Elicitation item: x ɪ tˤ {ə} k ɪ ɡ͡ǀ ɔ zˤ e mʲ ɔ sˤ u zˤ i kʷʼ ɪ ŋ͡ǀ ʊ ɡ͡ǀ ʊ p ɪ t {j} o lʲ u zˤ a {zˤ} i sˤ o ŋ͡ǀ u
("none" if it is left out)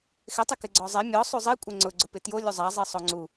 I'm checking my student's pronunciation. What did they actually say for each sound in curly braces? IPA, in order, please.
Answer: ɪ, j, zˤ

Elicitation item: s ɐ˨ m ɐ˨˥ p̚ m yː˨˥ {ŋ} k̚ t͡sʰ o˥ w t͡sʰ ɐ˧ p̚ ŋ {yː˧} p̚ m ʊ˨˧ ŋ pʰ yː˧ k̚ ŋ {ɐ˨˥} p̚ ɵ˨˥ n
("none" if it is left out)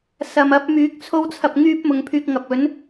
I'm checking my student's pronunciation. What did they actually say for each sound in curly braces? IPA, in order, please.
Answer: none, yː˥, ɐ˨

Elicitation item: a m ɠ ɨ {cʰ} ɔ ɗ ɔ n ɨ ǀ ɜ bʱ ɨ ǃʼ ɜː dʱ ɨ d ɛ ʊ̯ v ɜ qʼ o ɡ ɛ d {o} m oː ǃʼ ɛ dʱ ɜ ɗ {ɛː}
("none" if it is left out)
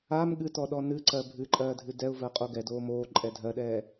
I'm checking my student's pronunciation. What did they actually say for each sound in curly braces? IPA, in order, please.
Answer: t, oː, ɛː

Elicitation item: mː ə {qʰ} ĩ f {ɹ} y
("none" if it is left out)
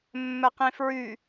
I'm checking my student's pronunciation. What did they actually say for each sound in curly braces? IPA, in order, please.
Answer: q, ɹ

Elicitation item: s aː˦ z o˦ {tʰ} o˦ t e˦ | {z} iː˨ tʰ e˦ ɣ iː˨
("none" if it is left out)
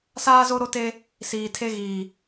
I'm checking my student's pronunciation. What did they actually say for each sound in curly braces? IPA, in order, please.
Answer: ɾ, s

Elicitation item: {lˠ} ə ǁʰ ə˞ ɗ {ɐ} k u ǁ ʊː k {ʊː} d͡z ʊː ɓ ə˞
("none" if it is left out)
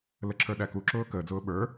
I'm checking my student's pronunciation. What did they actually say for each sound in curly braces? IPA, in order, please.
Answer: l, æ, əː

